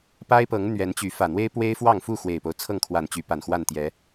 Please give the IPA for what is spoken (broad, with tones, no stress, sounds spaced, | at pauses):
p a˦ ɪ̯ p ɤ˨˦ ŋ n̪ ɥ ɛ˨˦ n t͡ɕ y˨˦ f ä˨˩ n̪ w e˦ ɪ̯ p w e˦ ɪ̯ f w ɑ˥˨ ŋ f u˥˨ x w e˨˩ ɪ̯ p o˦ ʊ̯ t͡sʰ ɤ˥˨ ŋ kʰ w a˨˩ n t͡ɕ y˨˦ p a˨˩ n x w a˥˨ n t̪ j ɛ˨˦